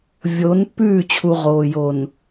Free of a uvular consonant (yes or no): no